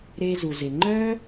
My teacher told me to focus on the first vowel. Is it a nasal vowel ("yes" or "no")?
no